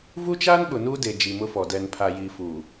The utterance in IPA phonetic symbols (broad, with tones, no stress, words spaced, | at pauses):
vu˦t͡ʃaː˦nɓʊ˨ nuː˦de˨ d͡ʒi˨mʊ˦fɔ˨ dɛ˨npʰa˨ jiː˨fuː˨